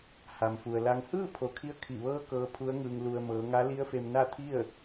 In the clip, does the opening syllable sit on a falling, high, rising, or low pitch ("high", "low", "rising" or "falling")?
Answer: low